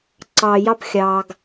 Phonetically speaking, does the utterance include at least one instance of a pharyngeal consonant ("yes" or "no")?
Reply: no